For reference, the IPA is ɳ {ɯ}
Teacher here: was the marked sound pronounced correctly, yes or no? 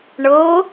no